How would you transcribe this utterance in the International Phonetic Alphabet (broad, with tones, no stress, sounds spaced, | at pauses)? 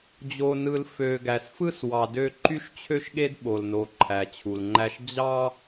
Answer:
d͡ʑ o˨ n ɯ˨ l f ø˨ ɡ æ˨ s f ɯ˦ s w ɑ˨ d ø˦ ǃ y˦ ʃ t͡ɕʰ ø˦ ʃ ɠ e˦ d ɓ o˨ l n o˨ ǃʰ æ˨ t͡ɕʰ u˨ l ŋ͡ǃ æ˦ ʃ d͡ʑ ɑ˦